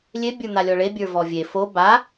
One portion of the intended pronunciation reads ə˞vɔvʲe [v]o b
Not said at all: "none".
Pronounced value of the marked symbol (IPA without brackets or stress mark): f